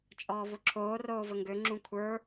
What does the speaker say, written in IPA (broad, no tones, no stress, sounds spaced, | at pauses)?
t͡ʃʼ ɔː v o ǁʰ oː r oː v ə ŋ ɡ ø ŋ͡ǁ ũ kʷʰ ə˞